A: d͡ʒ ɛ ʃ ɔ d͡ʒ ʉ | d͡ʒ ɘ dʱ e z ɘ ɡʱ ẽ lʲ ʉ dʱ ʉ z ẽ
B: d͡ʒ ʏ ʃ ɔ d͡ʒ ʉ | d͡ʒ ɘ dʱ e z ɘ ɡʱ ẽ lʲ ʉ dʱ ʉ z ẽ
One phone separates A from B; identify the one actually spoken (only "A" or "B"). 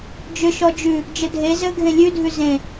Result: B